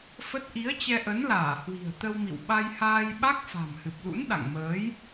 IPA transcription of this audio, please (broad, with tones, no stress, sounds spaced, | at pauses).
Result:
f ə˦˥ t̚ ʔ i˨˦ ə̯ t͡ɕ ɛ˧ ʔ ə˨˦ n l aː˧˩ h w i̤˨˩ ə̯ t̪ ə˧ w m ḭ˧˨ w ɓ a˧ j h aː˧ j ɓ a˦˥ k̚ f a̤˨˩ m h ɨ˨˩ p̚ l ṵ˧˥ n ɗ a̰˧˨ ŋ m əː˨˦ j